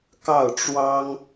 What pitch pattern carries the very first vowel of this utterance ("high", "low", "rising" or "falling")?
falling